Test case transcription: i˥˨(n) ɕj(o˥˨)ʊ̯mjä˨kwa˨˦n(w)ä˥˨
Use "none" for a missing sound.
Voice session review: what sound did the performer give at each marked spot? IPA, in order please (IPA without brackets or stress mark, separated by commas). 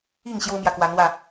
ŋ, o˦, w